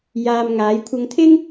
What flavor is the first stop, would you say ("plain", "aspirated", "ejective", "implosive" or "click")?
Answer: aspirated